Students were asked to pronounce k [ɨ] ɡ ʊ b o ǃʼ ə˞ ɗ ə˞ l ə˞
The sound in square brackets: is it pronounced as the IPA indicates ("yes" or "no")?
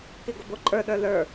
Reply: no